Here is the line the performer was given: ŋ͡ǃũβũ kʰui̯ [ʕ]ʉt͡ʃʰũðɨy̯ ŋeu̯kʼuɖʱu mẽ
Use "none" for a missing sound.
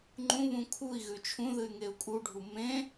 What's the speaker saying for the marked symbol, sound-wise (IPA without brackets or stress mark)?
ɣ